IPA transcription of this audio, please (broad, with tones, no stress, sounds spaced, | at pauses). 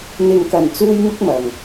n̪ ɪ˨ ŋ k ɐ˨˩ n t͡s uː˥ j ŋ ʊ˥ k̚ m ɐ˨˩ ŋ